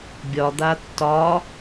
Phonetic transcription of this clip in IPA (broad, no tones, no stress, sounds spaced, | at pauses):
bʲ ɒ d̪ a tː ɒ